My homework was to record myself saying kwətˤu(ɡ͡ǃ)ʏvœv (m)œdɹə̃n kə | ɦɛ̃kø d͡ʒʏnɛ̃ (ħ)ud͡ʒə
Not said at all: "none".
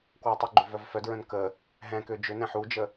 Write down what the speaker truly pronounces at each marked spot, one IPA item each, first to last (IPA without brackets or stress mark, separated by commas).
ɡ͡ǃ, f, ħ